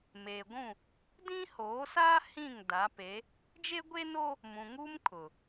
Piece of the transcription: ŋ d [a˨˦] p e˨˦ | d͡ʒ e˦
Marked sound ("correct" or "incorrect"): correct